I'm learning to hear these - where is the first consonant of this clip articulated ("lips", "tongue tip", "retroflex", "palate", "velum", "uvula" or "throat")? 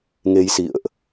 velum